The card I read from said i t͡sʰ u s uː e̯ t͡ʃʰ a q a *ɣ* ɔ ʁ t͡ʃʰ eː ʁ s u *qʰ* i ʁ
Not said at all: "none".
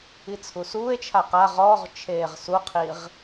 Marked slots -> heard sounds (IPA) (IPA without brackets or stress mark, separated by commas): ʁ, qʰ